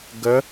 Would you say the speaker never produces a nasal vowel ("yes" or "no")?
yes